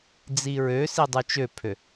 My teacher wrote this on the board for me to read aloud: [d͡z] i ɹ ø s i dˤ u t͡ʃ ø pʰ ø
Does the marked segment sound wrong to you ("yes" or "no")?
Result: no